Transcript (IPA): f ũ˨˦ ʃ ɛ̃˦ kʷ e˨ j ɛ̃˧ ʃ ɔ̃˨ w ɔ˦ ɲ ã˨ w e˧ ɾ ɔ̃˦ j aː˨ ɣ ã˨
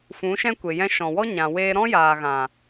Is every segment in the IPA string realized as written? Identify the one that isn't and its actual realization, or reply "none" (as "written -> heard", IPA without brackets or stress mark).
none